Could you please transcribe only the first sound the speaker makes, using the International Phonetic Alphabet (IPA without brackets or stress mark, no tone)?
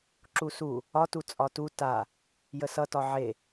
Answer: ǁ